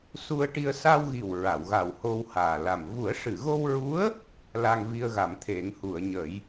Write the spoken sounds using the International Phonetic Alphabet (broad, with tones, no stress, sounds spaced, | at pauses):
s u˧ ə̯ ʈ i˧ ə̯ s a˧ w ɣ i˨˩ w ɹ a˨˩˨ w ɣ a˨˩ w h o˧ w h aː˨˩ l a˨˩ m v u˨˩˦ ə̯ ʂ ɨ˨˩˨ ɣ o˧ w ɹ u˧˥ ə̯ | l a˧ ŋ v i˧ ə̯ ɣ a˨˩˨ m t̪ʰ e˨˩˦ ŋ h u˨˩˨ ə̯ ɲ ə˨˩˦ j